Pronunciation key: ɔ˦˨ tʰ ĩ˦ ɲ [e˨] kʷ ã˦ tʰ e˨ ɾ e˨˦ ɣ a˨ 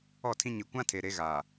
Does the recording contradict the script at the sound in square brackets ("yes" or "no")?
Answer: yes